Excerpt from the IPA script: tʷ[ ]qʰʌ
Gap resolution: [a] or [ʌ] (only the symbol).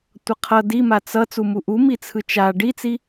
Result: ʌ